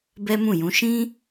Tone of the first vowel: high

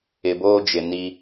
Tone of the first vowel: low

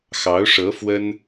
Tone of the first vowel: rising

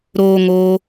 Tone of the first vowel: high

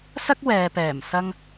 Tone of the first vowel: high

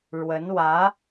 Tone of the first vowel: rising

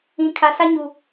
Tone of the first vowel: low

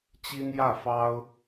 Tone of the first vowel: high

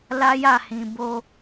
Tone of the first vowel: high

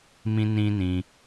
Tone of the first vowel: high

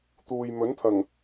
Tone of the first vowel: low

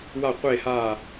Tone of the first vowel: falling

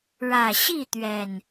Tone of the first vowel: low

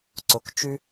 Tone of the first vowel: low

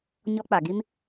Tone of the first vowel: high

